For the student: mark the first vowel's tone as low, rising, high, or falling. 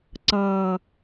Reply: low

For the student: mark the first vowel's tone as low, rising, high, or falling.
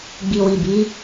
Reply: low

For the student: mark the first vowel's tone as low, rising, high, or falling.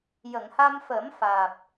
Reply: low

